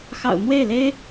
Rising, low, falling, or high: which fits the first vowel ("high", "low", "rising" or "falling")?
low